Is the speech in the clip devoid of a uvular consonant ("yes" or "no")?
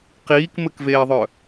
no